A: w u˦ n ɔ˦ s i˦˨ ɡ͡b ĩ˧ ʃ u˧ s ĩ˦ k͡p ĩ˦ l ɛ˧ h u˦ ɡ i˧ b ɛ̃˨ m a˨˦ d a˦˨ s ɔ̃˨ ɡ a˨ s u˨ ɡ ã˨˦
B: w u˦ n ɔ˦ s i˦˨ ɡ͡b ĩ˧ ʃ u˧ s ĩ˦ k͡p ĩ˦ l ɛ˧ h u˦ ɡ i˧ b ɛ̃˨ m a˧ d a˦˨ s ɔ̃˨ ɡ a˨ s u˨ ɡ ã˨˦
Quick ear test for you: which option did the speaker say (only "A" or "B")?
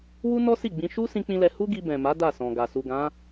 A